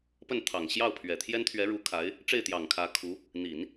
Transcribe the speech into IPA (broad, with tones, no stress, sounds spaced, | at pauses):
p ə˥˩ n t̪ʰ ɑ˨˩ ŋ ɕ j ɑ˥˩ ʊ̯ pʰ ɥ ɛ˨˩ t̪ʰ j ɛ˥ n t̪ʰ ɥ ɛ˧˥ ɻ u˧˥ kʰ a˧˥ ɪ̯ | ʈ͡ʂ e˥˩ ɪ̯ t̪ j ɑ˨˩ ŋ kʰ ä˧˥ kʰ u˧˥ | n̪ i˨˩˦ n